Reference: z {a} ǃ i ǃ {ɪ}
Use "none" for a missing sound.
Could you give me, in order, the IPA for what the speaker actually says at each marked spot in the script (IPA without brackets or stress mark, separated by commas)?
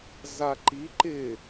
a, ɪ